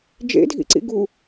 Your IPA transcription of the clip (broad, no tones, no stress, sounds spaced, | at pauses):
d͡ʒ ḛ dʱ ḭ ǀ ḭ ɡ u